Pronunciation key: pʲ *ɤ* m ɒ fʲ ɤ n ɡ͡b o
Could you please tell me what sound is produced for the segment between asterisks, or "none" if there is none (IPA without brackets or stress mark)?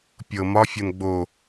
ɤ